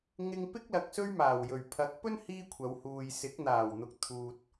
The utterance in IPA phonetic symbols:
ŋɪ˧ŋpɪ˥k̚lɐ˨k̚ sɵ˥ɥmaː˨˩wjɵ˨˩ɥ pʰɐ˨˥k̚pɵ˥n hiː˥kʷʰɐ˨˧w huː˨jsɪ˨˥k̚ n̪aː˨˩wn̪ʊ˨k̚ t̪ʰuː˨t̚

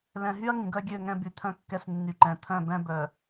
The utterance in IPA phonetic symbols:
lɛ̃˨ɦy˦ɐ̯ ŋĩ˨ɡœ˦ɡʲø˦˨ ŋɛ̃˦by˨t̪ʰœ̃˦kːɛ˦s nːy˨ǃɛ̃˨ t̪ʰœ̃˦˨bɛ̃˦ bœ˨

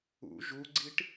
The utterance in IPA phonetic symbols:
ṵ ʒuɡ͡ǀiʈ

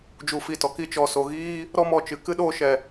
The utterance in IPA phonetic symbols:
d͡ʒu˨fi˨ tɔ˨ki˧t͡ʃɔ˨ so˨ɣiː˦ | ɾɔ˦ mɔ˦t͡ʃɨ˧ kɨ˦ɗoː˧ʃɛ˨

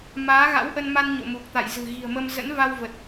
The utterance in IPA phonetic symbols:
maː˨˦ɣa̰˧˥wʔə˧nma˧n ɲo̰˧˨mu˨˩k̚t̪a̰˧˨jzɨ̤˨˩ ɣi̤˨˩ə̯mə˧m zə̰˧˥nva˧wvə˨˩t̚

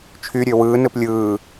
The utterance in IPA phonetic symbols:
t͡ʃʰyɾʲø wɯːnɯp lʲɯː

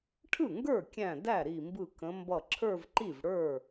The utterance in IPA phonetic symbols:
ʈʰɯ˥˩ŋɡə˞˥˩kʲæ̃˧˩ dæ˥˩ɾi˧˩mbɯ˧˩ kə̃˨˦mbʌ˧˩ ǁʰə˞˥˧vǃi˥˩vɽə˞˥˩

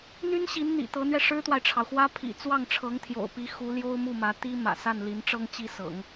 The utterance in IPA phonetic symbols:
n̪y˥n ɕi˧˥nn̪ḭ˨˩t̪ɤ˧˥n̪ɥɛ˧ ʂɻ̩˥t̪wa˨ɪ̯ʈ͡ʂʰɑ˩ʊ̯xwä˥ pʰḭ˨˩ t͡swɑ˥˩ŋʈ͡ʂʰɤ˧˥ŋt̪ʰjo̰˨˩ʊ̯pi˧˥ xu˧˥ljo˥ʊ̯mu˥˩mä˧˥ t̪i˥ mä̰˨˩sa˥˩nli˧˥nʈ͡ʂɤ˥ŋ t͡ɕi˥sɤ̰˨˩˦ŋ

